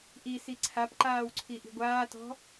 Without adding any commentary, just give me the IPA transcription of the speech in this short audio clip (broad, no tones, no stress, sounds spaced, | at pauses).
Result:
ʔ i s i ǀʰ a p ǃ aː w ǀʰ i ʔ i̤ ɡʷ aː t ɔ̤